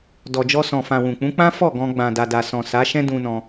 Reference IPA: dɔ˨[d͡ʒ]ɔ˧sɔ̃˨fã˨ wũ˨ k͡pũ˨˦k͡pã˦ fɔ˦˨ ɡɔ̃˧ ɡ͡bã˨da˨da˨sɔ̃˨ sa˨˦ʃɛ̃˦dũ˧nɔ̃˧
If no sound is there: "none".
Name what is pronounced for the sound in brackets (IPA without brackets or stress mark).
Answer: d͡ʒ